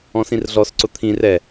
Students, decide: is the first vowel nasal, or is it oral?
nasal